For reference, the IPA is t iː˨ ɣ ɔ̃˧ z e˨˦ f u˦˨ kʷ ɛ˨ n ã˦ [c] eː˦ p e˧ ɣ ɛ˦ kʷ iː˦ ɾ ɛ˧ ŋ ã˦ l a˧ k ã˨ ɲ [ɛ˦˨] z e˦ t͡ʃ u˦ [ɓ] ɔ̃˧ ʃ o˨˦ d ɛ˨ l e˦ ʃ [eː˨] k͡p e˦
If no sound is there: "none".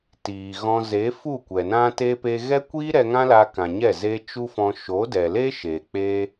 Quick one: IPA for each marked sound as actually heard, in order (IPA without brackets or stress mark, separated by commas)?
t, ɛ˦˨, f, e˨